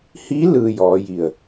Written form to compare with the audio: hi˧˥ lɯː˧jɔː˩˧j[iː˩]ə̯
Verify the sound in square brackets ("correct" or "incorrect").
incorrect